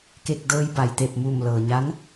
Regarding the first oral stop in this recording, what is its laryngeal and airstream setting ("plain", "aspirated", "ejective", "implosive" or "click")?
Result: plain